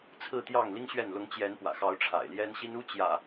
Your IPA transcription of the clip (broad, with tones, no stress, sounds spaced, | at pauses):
t͡sʰ ɹ̩˥˨ t̪ j ɑ˥˨ ŋ l i˦ ŋ ɕ ɥ ɛ˥˨ n l ʊ˨˦ ŋ t͡ɕ j ɛ˨˦ n p w ä̰˨˩ x ɑ˨˦ ʊ̯ ʈ͡ʂʰ a̰˨˩ ɪ̯ l j ɛ˦ n ɕ i˦ n u˦ t͡ɕ j ä̰˨˩